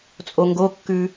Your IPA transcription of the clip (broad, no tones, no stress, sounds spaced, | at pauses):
t͡sʼ o ŋ ɡ o kː ʉ